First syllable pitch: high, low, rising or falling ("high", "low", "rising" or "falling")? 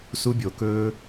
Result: high